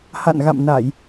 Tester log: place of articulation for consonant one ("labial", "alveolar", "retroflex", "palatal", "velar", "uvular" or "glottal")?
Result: glottal